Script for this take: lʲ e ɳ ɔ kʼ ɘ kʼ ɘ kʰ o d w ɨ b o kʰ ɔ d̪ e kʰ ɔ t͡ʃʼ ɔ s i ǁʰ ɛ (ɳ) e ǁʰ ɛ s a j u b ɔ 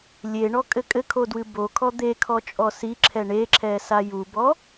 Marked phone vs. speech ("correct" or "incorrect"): correct